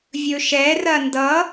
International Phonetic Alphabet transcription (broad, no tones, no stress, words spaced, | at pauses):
vʲɵʃɛrɐ ndʌ